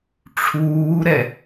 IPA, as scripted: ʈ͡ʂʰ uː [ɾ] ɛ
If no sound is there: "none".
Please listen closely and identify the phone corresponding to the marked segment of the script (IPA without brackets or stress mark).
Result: ɾ